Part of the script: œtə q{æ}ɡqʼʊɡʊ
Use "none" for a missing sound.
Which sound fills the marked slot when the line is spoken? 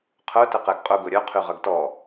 ɛ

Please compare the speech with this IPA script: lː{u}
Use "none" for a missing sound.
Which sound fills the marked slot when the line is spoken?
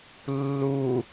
u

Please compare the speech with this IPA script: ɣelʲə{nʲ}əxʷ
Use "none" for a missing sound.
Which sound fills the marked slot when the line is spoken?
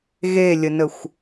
n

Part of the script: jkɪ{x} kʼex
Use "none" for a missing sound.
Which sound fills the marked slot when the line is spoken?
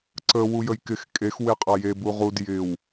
x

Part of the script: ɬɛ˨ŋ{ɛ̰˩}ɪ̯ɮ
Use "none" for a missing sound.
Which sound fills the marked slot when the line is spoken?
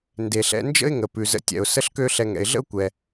ɛ̰˩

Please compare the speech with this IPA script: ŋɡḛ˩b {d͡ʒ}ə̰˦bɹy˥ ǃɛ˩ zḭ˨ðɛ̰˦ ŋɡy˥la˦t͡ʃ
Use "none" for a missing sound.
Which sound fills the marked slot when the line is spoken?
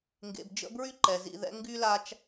d͡ʒ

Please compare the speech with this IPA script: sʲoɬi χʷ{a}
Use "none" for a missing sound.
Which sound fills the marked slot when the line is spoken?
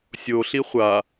a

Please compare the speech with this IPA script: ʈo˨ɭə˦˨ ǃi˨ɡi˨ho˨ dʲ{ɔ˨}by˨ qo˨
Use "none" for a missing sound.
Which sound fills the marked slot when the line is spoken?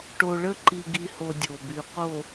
o˨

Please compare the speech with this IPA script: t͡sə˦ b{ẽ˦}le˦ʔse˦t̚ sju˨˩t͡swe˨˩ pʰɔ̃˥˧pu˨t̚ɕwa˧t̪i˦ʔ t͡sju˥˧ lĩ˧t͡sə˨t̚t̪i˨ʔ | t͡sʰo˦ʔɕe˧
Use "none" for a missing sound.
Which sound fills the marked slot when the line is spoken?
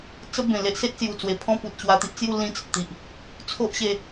ẽ˨˩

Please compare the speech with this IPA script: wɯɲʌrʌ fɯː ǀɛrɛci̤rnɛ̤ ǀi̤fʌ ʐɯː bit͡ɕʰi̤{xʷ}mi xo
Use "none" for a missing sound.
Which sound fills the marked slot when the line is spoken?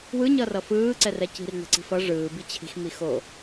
x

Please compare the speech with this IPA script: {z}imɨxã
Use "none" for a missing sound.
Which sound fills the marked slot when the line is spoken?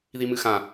ð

